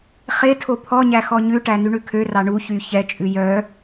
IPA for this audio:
χe tʰopʰɔɲæ xɔɲʉʈæ nyɳʉkʰørɑ ɳuçy çɛt͡ʃʼʉ jœ

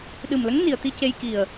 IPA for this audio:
ɗɨ˨˩mlə˧˥ŋ ni˨˩ə̯t̪i˧ce˧j ki˨˩ə̯

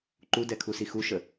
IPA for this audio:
ǃudɛkʰusi xuʃə

